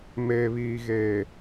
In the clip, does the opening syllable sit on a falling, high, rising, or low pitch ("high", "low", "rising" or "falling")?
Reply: low